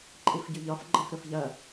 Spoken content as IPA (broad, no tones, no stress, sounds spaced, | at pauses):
ǃʼ i f ɟ y ʎ ɒ f ɡ͡ǃ ɐ f ɾ ɵ f ʎ ɐ